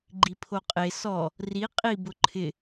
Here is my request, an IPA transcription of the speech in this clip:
ɡ͡ǃ i pʰ o qʼ e s ɔ | r i qʼ i b ʊ ǃʰ ɪ

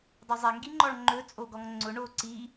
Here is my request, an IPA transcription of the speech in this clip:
dˤ ɵ zˤ ɛ ŋ ɡ i ŋ͡ǃ ɔ ɭ ŋ͡ǃ ɵ t͡sʼ o ɡ ɔ ŋ ŋ͡ǀ ʊ ɳ o ǀ i

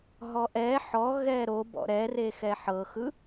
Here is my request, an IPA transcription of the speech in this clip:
ɦ ɔ ʔ ɛ ħ ɔ ɣ ɛ ɾ o b ɔ̰ ɾ ɛ r e x ɛ ħ ɤ x ɯ

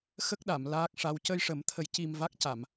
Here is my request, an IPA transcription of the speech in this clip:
x ə˦˥ k̚ ɗ a˨˩˨ m l aː˦˥ k̚ ʂ a˧˥ w c ə˧ j ʂ ə˨˩˦ m t̪ʰ ə˨˩˦ j c i˧ m v a˦˥ k̚ c a˨˩˨ m

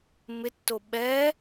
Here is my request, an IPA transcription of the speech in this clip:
m ɪ tː o ɓ ɛ

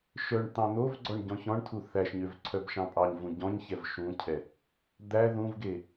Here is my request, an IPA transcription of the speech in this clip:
ʃ œ ɳ t̪ ɑ̃ n̪ o v ɡ͡ǀ ɔ ɳ ɟ ɔ̃ ç ɔ̃ ɳ tʰ u θ æ ʃ ɲ ø v ǀʰ œ b ʃ ɑ̃ pʼ ɑ ɲ v ũ ɟ ɔ̃ ɲ ç ɛ v ʃ ũ cʰ ɛ | d̪ æ ð ũ v ɡ e

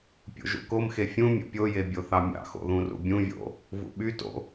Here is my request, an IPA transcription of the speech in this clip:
pʲ o̰ ʒ ṵ k o m x e fʲ ũ mʲ o̰ pʲ o j e bʲ o θ ɑ mʲ ɑ̰ x o̰ ð ũ r ṵ bʲ ũ vʲ o̰ | v ṵ ɓ y t o̰

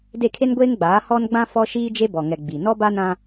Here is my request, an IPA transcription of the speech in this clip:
d e˦˨ kʰ e˦ n ɡʷ eː˦ ŋ ɡ͡b aː˨˦ h ɔ˦ n ɡ͡b ã˦ f ɔ˦ ʃ iː˦ d͡ʒ e˦ b ɔ˨ ŋ ɛ˨ ɡ͡b i˨ n ɔ˦ b a˦ n ã˦

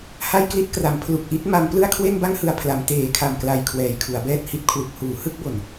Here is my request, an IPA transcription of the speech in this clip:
h a˥˩ j k l i˥˩ t̚ k r a˩˦ m pʰ l u˨˩ k̚ ʔ i˦˥ t̚ m a˧ m p l ɯ˥˩ a̯ kʰ w e˥˩ n b a˥˩ ŋ h ɯ˨˩ a̯ pʰ l a˩˦ m t eː˨˩ kʰ a˨˩ m k l a˨˩ j kʰ w ɛː˨˩ j kʰ u˩˦ a̯ b ɛː˥˩ t̚ h i˦˥ t̚ kʰ w u˨˩ k̚ h uː˩˦ h ɯ˥˩ k̚ b o˨˩ n

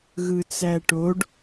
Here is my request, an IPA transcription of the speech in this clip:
ɣ ɯ t͡s æ ʈ o ɖ

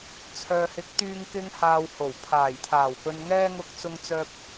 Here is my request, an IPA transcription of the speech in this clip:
t͡sʰ œː˨ h ɪ˨˥ k̚ t̪ yː˧ ŋ k ɪ˧ ŋ h aː˨ w h o˨˩ w pʰ aː˨˩ j t̪ʰ aː˨˩ w p ɵ˨ n ŋ ɛː˧ ŋ ʊ˨ k̚ t͡s ʊ˨ ŋ t͡s œː˨ p̚

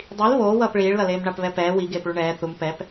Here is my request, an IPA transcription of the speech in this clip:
dˤ i l β oː w ʌː p ɭ iː ɭ l ʌ l eː m ɳ a p β ɛ p ɛː w i ɡ eː p ɭ u ɳ ɛː θ u m p ɛ p

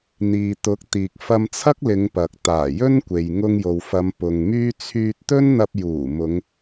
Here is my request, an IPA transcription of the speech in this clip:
n̪ iː˨ t̪ ʊ˨˥ k̚ t̪ iː˨ k̚ f ɐ˧ m t͡sʰ ɐ˥ k̚ l ɪ˨˧ ŋ p ɐ˨ k̚ t̪ aː˨˩ j ɵ˥ n kʷ e˨ j ŋ ʊ˧ ŋ j o˨ w f ɐ˨˧ m p ʊ˨ ŋ m yː˥ t͡sʰ yː˧ t̚ t̪ ɵ˥ n n̪ ɐ˧ p̚ j uː˨˩ m ʊ˨˧ ŋ

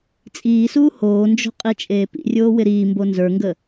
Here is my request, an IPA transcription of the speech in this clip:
t͡sʼ iː s uː h oː n d͡ʒ o̤ qʼ i t͡ʃʼ eː p ḭ rʲ oː w ɪ ɾ iː m b o n z ə˞ ŋ ɡ ə

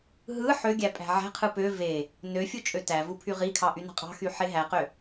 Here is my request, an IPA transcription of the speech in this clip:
ɦ ɯ ħ ø ɡʲ æ pʼ æ̤ ʕ æ̤ qʰ ɯ p ø v e | n ø fʲ u t͡ʃʼ ø t æ v u pʰ y ʁ i kʰ ɑ ʔ y n ɑ̤ qʼ ɑ̤ x y ħ e ɦ æ q ø

